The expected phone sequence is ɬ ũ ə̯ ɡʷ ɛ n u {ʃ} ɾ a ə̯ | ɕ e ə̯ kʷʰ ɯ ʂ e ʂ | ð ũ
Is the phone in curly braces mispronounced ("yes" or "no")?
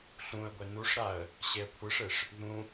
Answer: yes